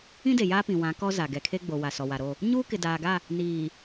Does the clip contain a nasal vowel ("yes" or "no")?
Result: yes